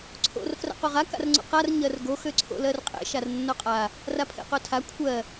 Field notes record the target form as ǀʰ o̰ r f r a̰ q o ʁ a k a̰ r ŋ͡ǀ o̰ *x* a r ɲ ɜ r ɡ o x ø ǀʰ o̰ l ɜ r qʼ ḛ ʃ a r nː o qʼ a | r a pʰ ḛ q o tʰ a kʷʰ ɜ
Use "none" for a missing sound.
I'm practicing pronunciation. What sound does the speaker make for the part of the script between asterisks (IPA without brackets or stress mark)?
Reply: q